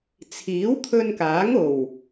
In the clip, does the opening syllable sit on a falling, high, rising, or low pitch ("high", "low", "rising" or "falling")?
rising